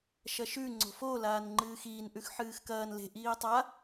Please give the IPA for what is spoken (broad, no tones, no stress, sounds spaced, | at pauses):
ʃ ɐ ʃ ʉ ŋ͡ǀ o̤ f o l aː n ŋ͡ǃ ɨː x iː n ʔ ʉ x ħ ɨː x k ɐː n l e̤ ʔ iː tˤ a